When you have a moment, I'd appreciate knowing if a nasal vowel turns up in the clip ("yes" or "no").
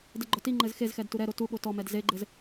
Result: no